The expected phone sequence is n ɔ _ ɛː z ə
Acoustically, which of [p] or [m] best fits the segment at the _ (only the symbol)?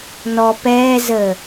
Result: p